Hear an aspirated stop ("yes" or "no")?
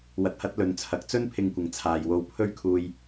yes